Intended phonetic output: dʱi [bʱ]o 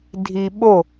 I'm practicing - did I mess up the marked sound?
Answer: yes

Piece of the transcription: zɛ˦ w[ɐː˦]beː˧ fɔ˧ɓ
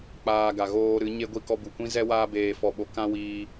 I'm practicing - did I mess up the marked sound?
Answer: yes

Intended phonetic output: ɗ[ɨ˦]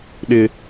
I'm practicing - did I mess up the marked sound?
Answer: yes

